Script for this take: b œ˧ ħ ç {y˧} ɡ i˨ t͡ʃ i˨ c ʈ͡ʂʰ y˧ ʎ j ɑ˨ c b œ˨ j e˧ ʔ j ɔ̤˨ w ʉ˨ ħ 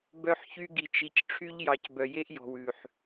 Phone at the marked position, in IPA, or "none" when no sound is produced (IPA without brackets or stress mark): y˧